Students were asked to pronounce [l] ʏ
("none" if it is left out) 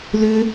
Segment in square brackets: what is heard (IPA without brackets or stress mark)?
l